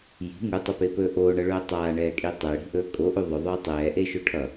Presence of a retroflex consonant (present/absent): present